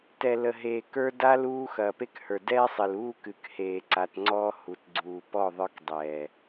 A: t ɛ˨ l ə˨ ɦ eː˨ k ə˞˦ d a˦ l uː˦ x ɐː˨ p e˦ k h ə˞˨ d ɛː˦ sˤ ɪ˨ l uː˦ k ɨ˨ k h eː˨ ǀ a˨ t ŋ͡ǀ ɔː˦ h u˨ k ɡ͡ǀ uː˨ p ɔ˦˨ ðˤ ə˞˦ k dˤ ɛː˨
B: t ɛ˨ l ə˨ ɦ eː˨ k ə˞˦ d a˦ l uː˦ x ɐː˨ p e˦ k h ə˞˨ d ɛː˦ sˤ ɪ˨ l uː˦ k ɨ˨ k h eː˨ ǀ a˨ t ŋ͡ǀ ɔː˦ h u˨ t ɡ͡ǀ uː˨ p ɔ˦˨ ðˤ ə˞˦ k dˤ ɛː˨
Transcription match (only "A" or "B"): B